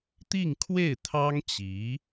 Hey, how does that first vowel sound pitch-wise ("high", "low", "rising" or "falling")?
falling